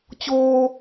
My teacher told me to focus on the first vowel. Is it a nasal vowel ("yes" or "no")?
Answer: no